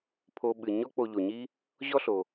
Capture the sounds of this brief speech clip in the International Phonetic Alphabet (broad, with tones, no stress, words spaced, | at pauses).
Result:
pʰo˨ɓɨ˩ ɲɔ˦k͡po˨ ʎo˩ɲi˦ | ʑɔ˥ɬo˩